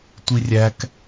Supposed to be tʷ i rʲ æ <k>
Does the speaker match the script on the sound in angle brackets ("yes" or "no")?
yes